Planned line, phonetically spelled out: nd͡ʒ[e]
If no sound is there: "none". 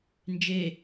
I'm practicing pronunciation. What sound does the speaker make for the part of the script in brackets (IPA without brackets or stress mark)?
e